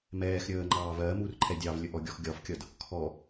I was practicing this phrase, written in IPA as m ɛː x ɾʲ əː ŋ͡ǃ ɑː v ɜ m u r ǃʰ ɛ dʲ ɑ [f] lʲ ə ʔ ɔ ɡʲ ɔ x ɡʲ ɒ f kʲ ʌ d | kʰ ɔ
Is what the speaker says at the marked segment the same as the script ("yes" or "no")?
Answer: no